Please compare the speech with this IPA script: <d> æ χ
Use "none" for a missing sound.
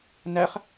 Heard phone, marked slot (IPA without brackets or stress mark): n